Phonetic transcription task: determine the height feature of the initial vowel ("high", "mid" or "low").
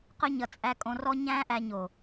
mid